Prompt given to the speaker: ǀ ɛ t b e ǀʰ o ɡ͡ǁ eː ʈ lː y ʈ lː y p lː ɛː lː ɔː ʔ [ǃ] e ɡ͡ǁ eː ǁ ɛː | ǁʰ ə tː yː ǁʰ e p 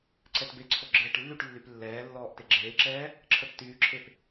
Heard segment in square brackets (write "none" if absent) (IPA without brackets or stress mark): t